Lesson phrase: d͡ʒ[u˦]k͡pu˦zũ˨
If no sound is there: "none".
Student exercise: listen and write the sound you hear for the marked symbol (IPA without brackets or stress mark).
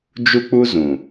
u˦